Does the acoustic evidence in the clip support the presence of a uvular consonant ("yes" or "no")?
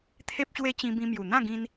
no